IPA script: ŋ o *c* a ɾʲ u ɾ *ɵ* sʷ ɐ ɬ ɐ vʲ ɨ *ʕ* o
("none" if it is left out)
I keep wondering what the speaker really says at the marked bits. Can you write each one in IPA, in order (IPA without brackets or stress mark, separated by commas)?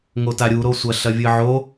t, o, ʕ